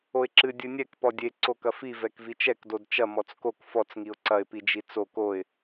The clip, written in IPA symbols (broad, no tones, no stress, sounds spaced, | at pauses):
o ɪ̯ ǁ ɨ dʲ ɨ nʲ ɛ k p ɔ dʲ e ǀ o k ɐ f i v ɛ k v i t͡ʃ ɛ k d o d t͡ʃ ɐ m ɔ t͡s k o k f ɔ t͡s ŋ i ʊ̯ ǀ ɐ ɪ̯ p i d͡ʒ i t͡s o k o ɪ̯